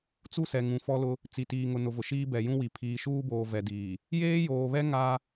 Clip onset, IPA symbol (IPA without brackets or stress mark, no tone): t͡s